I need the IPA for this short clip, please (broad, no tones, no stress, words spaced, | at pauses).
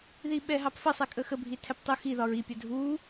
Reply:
ðiɓɛɦɑpfə sˤɛkʼəxə bʱitʰɛptˤuxi ðɒɹi pʲədʱu